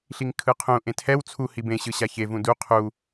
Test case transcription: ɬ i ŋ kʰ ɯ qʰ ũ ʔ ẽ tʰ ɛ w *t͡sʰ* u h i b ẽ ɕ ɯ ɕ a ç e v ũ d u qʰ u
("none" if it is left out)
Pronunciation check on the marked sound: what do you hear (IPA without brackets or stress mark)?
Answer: t͡sʰ